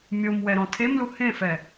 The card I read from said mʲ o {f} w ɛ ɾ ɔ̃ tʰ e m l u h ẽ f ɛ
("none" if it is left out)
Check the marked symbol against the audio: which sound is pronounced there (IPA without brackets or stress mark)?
m